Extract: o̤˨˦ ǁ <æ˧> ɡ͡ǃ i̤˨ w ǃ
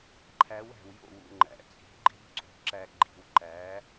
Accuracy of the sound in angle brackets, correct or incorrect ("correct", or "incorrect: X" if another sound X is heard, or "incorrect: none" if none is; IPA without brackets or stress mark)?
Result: correct